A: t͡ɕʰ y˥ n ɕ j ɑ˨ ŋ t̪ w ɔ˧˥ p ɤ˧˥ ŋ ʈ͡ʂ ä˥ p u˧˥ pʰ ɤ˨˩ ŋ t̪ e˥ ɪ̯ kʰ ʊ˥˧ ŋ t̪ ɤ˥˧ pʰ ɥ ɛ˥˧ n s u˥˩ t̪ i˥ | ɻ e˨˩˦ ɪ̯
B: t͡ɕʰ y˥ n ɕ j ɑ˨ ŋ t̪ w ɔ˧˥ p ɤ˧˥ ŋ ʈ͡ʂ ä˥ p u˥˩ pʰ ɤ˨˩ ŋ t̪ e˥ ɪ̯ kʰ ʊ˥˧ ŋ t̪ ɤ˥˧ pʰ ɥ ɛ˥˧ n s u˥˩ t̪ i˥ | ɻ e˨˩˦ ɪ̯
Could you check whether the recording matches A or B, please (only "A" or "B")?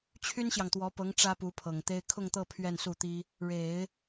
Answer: A